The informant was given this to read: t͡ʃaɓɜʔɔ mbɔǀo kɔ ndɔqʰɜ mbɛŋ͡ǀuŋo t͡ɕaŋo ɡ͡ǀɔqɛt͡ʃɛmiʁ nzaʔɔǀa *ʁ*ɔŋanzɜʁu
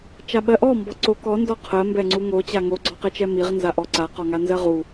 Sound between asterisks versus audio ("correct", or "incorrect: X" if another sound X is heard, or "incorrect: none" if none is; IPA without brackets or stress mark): incorrect: q